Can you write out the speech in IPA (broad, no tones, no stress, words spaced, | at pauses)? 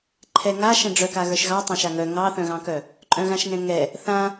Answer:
ǃʰɛŋa ʃɛ̃ɖ͡ʐœka ɣə˞ʃɣɑ tˤãʃaŋœ ŋɑθœ̃ɣɑ̃kœ | ǃʼœ̃ɣãʃŋɛ̃ŋɛ | θã